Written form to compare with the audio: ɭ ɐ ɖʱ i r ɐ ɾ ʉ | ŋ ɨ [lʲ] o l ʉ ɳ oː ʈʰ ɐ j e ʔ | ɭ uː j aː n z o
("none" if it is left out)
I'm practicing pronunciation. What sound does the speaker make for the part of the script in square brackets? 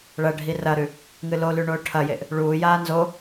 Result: l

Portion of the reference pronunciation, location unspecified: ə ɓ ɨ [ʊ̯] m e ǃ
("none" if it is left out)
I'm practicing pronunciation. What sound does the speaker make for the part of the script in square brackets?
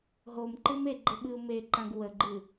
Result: ʊ̯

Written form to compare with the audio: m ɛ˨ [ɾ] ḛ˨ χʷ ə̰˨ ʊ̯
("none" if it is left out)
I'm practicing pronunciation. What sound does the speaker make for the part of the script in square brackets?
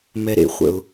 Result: ɾ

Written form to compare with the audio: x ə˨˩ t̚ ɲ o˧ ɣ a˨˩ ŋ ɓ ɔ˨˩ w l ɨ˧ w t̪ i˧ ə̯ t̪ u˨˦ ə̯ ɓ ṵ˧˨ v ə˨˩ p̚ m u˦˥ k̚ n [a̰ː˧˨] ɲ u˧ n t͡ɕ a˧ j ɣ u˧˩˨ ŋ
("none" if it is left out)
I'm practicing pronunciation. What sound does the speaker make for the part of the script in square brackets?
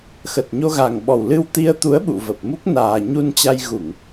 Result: aː˨˩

